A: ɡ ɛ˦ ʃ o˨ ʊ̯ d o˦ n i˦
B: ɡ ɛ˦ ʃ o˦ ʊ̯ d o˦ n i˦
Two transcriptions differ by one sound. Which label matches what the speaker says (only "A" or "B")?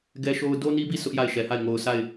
B